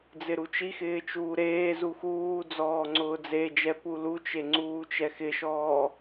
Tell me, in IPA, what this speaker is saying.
d͡z ɪ ɾ u t͡ʃ i x ɪː t͡ʃ uː ɾ eː z u x uː d͡z ɔː ŋ͡ǀ ʊː d͡z e d͡ʒ ɛ p u l u t͡ʃ e ŋ͡ǀ uː t͡ʃ ɛ x ɪ ʃ ɔː

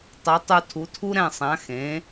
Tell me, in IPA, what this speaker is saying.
tˤ ɛ˩˥ tˤ u˧ tʰ u˩˥ tʰ u˥ ɾ ɛ̃˥˩ sˤ ã˩˥ x ẽ˩˥

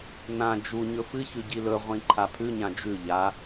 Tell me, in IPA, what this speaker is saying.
n ã d͡ʒ u ɲ ɵ f ɨ ç ʉ ɟ i l ɵ ʁʷ ĩ ǃʰ a pʰ ʉ ɲ ã d͡ʒ ʉ ʎ a

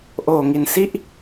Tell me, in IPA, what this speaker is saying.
ʔ oː˨˩ ŋ i˨˩ n s i˥˩ ʔ

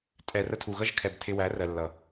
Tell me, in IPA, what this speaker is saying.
tʼ ɛ˨ r ə˧ tʰ u˨ ɣ ʌ˦ ʒ kʰ ɛ˨ b tʰ ɪ˧ w æ˨˦ r ɜ˨ lː ʌ˨

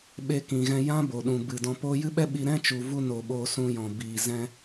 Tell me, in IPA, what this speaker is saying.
ɓ e˧ k ĩ˨ ɣ ɛ̃˧ j ã˦ b o˨ ɗ ũ˨ b ɨ˨ d ɔ̃˧ p oː˦ j ɨ˦ ɓ ɛ˦ ɓ i˧ ɾ ɛ̃˦ t͡ʃ u˨ v u˧ n o˨ ɓ oː˧ s ũ˧ j ɔ̃˨ b iː˨ z ɛ̃˧

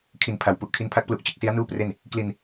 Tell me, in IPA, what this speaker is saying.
kʰ i˨˩ n pʰ a˩˦ w p u˨˩ ʔ kʰ i˦˥ n pʰ a˥˩ k̚ p l u˦˥ ʔ t͡ɕ ɯ˦˥ k̚ s i˦˥ a̯ n uː˥˩ p r e˥˩ n | k l i˧ n

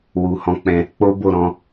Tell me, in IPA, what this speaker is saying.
w u˧ h ɔ̃˦ k͡p ɛ̃˦ | k͡p o˦ b o˦˨ ɾ ɔ̃˨˦

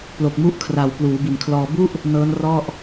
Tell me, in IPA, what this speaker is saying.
p l o˨˩ k̚ m u˦˥ ʔ kʰ r a˨˩ w p l uː˩˦ b i˨˩ n kʰ l ɔː˧ b u˥˩ ʔ | n ɤː˦˥ n r ɔ˥˩ ʔ

